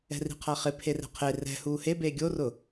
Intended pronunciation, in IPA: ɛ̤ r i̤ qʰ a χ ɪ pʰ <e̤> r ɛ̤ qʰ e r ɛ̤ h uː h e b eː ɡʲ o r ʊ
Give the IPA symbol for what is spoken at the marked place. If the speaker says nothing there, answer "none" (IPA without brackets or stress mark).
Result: e